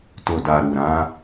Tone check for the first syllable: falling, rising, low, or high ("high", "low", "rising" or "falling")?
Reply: low